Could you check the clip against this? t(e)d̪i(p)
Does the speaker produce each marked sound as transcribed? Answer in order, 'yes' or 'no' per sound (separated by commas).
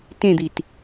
no, no